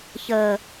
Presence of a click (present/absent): absent